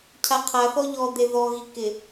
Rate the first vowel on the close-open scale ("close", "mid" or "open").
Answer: open